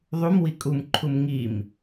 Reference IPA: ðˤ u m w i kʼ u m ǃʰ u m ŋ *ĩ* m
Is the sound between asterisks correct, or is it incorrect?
incorrect